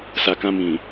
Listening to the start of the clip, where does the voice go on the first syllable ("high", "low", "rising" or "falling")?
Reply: low